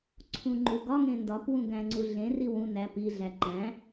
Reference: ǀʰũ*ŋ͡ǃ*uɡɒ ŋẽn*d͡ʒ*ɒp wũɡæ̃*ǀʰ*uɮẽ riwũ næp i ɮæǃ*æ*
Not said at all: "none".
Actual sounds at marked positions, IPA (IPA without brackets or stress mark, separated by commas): ŋ͡ǃ, d, ŋ͡ǀ, æ̃